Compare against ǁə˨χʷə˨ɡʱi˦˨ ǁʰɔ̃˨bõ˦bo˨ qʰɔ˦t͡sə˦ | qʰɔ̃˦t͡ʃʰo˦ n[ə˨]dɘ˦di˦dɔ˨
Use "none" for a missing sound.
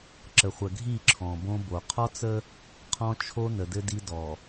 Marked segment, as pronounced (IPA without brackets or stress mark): ə˨